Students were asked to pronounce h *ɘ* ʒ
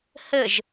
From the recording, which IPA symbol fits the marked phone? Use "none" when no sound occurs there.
ɘ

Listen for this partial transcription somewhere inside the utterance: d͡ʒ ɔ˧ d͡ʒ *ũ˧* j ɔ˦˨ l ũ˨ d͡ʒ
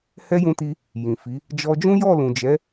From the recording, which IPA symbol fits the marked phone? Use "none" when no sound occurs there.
ũ˦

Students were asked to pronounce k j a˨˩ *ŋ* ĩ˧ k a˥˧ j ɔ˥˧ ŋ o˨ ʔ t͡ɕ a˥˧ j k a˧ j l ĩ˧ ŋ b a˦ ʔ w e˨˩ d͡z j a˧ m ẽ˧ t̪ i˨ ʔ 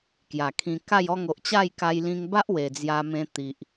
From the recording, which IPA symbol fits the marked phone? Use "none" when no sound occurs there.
kʰ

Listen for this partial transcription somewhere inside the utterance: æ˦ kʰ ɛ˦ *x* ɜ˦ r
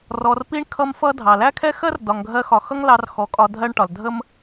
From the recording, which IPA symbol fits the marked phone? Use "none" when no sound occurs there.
x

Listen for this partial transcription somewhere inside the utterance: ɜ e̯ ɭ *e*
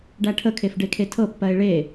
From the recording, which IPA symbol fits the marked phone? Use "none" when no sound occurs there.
e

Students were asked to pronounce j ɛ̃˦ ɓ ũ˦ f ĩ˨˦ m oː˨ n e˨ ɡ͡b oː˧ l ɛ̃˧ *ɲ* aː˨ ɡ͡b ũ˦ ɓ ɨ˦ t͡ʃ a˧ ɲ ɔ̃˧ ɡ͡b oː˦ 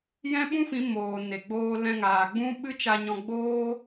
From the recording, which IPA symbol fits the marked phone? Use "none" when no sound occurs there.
ŋ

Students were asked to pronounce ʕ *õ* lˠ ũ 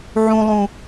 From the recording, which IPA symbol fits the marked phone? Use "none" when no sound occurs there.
ũ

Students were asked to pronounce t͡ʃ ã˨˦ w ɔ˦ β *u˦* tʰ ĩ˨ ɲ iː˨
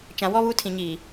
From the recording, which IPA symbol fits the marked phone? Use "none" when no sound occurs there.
u˦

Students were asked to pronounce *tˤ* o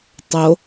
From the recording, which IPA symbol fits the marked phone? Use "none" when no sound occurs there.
tˤ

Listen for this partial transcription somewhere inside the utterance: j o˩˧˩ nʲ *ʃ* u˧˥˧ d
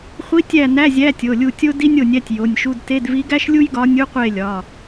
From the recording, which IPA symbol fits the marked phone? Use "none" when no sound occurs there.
ʃ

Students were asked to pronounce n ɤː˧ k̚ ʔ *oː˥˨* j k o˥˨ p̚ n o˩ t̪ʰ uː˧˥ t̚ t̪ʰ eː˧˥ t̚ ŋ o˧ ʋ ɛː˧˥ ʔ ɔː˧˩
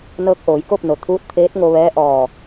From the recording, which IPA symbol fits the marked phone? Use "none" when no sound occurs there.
oː˩˧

